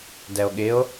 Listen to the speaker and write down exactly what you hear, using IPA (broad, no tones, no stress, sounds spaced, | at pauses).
d ɛ o̯ ɠ ɪ o̯